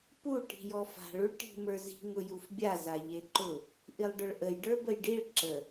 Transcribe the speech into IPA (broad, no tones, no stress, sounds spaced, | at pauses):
p u ʈ i̤ j ɔ f a̤ ɭ u ɭ ʈ i̤ m ə˞ z i̤ ŋ ʊ j u f bʲ a z a ʎ e ǃ ʊ | ʔ i lˠ ɖ ʊ ɭ ʔ ə j ɖ ə˞ b ə j ɖ i ɭ ǁ ə